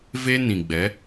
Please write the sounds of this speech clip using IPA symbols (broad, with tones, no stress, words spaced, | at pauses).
ve˦nĩ˨ɡ͡bɛ˨˦